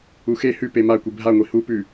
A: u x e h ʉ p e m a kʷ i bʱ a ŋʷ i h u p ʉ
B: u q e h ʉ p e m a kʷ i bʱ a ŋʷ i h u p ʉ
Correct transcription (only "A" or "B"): A